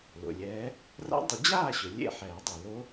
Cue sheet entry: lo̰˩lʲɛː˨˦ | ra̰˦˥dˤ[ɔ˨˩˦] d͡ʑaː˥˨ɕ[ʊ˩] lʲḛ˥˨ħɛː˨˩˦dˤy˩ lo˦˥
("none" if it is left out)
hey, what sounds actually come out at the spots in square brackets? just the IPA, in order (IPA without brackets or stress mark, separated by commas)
ʊ˨˩˦, ʊ˩